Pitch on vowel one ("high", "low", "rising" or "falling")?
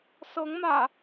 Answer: rising